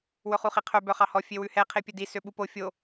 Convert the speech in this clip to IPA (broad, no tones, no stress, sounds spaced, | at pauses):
w ɵ χ u χ i qʰ œ b œ χ ɑ h ɔ fʲ e w ʉ h ɛ qʰ e pʲ ɵ d i s ø ɓ u p o fʲ o